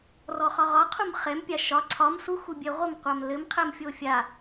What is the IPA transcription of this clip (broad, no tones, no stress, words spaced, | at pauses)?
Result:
rɔχɒʁɒqʰum χɛmpʲa ʃɒ ǀʰɒm suxubʲɛ ʁʷɘmqʷam lɘmqʰɛmfʲo fʲa